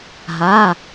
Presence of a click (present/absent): absent